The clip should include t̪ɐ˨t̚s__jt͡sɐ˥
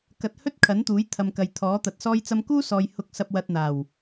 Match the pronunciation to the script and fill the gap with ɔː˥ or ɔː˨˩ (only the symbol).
ɔː˥